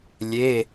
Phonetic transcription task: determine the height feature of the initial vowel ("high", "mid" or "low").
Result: mid